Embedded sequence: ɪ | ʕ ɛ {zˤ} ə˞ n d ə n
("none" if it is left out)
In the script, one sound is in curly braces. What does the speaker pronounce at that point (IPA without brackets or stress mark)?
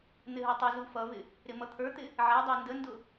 dˤ